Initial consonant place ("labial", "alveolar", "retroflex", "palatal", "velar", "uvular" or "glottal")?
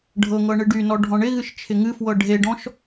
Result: retroflex